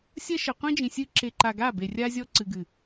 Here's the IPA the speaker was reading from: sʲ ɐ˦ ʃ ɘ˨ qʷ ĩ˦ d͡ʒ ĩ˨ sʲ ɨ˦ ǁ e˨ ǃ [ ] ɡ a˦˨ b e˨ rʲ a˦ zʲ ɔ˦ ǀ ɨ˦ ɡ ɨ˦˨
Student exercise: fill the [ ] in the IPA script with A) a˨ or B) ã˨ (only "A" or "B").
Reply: A